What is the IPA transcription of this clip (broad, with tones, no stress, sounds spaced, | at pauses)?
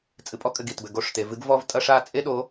t͡sʼ ɨ˨ pʼ ɔ˦ kʼ ɘ˨ ɡ i˨ t b ɘ˨ ɡ o˦˨ ʂ t e˨ v ɨ˦ ɡ v ɔ˦ v tʼ ɐ˦ ʂ a˦ t͡sʼ e˦ ɗ o˨˦